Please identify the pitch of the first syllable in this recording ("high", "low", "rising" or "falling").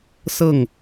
falling